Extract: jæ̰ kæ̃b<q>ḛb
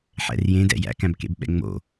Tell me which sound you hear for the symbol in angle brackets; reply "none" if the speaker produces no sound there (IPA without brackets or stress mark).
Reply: k